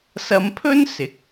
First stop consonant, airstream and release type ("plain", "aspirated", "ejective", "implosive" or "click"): aspirated